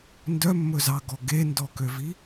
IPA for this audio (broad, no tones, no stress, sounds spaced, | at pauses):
n d œ mː ɵ z ɑ ɡ ɔ ɡ e n d ɔ k ø v i